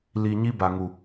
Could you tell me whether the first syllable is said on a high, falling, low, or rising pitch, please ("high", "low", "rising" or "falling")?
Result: low